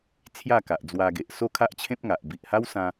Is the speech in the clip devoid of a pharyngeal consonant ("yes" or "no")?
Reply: yes